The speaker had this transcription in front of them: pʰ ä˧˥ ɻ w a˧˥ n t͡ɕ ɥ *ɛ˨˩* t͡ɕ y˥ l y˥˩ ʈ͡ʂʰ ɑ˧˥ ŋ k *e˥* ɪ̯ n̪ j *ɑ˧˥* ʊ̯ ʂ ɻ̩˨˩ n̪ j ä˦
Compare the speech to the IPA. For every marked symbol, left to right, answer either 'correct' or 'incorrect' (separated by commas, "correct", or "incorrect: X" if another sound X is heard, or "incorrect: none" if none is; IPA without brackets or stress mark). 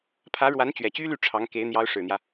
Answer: correct, incorrect: e˧˥, correct